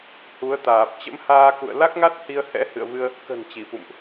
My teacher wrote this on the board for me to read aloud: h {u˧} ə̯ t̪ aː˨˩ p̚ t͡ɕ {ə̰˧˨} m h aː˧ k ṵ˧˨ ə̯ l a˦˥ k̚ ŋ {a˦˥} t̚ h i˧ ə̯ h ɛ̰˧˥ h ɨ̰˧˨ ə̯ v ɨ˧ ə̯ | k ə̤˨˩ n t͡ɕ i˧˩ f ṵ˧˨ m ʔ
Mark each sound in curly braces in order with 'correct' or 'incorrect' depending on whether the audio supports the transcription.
incorrect: u˨˦, incorrect: ə̰˧˥, correct

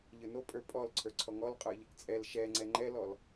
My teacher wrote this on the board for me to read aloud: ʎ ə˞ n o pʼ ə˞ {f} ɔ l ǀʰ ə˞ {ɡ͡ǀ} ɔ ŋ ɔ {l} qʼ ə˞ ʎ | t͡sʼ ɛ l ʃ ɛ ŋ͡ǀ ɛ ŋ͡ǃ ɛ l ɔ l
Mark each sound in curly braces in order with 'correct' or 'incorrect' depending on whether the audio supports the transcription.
incorrect: pʼ, incorrect: ǀʰ, correct

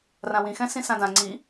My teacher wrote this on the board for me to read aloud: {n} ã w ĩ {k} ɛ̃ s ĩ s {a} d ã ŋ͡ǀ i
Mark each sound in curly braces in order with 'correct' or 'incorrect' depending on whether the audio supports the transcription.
incorrect: r, incorrect: x, incorrect: ã

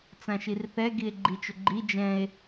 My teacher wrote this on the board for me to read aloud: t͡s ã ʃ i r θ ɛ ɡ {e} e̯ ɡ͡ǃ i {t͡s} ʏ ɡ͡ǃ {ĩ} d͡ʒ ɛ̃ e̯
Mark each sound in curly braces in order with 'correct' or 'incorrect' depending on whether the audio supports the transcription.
incorrect: i, incorrect: t͡ʃ, incorrect: i

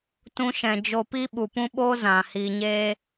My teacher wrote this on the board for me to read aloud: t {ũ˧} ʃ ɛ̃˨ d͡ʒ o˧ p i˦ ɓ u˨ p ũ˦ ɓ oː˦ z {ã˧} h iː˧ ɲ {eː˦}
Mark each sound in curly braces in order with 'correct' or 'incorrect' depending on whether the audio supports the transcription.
correct, incorrect: ã˨, correct

